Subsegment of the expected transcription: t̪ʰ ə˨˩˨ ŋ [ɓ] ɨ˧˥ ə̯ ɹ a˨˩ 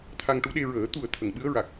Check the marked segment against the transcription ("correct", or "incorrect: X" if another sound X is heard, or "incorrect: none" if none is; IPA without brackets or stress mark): correct